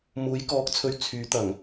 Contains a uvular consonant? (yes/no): no